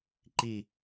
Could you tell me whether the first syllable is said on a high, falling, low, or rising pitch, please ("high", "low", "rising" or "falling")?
falling